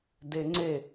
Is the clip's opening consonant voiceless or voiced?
voiced